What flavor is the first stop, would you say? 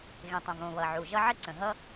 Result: plain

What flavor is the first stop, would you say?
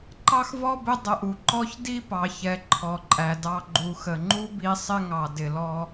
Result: click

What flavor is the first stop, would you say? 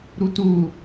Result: plain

